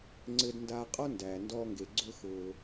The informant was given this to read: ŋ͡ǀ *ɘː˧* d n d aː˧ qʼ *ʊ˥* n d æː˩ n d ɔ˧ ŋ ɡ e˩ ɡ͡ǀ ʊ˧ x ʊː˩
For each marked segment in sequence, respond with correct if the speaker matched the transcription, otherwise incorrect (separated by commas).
correct, incorrect